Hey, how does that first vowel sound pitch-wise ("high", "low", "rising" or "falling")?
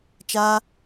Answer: high